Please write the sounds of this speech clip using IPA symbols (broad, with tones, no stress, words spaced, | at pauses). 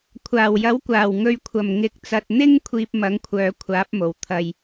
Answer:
kʷʰaː˨˩wjɐ˨˥wkʷaː˨˩w ŋɵ˨ɥkʷʰɐ˨˩m ŋɪ˨˥k̚t͡sɐ˨t̚n̪ɪ˥ŋ kʷʰiː˧p̚mɐ˨˥ŋkʷʰœː˨˧ kʷʰaː˨˥p̚mo˨˩w t̪ʰɐ˨j